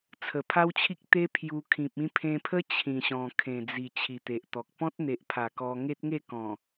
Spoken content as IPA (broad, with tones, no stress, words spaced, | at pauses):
t͡sʰə˨˩pʰa˦wt͡ɕʰi˦k̚ t̪e˦ pʰju˧ kʰĩ˨p̚ĩ˧pʰẽ˧pʰə˦ t͡ɕʰĩ˨˩ɕɔ̃˨˩ kʰẽ˨˩d͡zi˨˩ t͡ɕʰi˨˩t̪e˨ʔt̪ɔ˨k̚ pɔ̃˦t̚n̪e˨ʔpʰa˨˩ kɔ˧ ŋe˦t̚ŋe˥˧kɔ̃˨˩